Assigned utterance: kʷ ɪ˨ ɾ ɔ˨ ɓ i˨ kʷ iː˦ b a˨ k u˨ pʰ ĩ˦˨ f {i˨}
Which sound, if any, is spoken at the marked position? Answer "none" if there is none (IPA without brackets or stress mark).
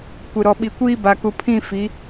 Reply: i˨˦